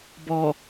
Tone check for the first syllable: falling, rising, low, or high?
low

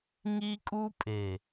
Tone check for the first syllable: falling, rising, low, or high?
high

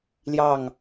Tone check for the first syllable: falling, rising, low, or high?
falling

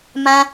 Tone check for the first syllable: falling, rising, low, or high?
high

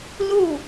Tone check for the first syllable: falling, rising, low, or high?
falling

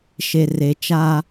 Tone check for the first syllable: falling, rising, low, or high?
low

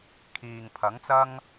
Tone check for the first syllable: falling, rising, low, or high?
low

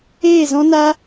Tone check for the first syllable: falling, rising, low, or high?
falling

